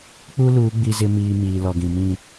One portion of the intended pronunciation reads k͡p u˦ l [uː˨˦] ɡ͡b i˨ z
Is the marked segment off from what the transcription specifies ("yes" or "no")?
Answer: no